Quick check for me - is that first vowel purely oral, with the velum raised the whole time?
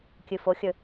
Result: yes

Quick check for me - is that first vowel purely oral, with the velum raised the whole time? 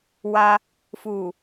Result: yes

